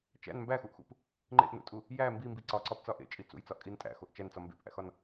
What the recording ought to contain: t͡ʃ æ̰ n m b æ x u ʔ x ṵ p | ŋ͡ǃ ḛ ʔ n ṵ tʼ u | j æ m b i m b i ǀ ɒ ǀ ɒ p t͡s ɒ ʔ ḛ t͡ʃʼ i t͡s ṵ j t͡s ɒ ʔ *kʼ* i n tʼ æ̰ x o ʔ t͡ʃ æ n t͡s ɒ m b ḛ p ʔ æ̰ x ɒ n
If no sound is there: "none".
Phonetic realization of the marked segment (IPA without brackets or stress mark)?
kʼ